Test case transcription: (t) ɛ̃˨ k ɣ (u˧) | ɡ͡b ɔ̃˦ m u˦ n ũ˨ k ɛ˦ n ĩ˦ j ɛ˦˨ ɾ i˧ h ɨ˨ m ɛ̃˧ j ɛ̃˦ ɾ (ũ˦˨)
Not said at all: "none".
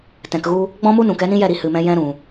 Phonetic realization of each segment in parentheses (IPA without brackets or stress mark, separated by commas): t, u˧, ũ˨